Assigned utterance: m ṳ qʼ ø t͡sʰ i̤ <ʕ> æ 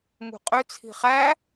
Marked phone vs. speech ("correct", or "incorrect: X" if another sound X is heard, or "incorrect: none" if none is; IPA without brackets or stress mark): incorrect: χ